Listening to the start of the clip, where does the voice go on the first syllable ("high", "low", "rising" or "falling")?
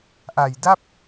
low